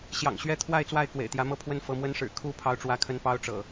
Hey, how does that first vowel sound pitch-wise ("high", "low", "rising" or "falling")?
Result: low